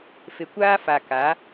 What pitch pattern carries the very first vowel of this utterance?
low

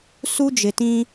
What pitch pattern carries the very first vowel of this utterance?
high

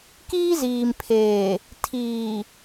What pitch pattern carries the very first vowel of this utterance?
high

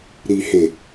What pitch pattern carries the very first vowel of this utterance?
low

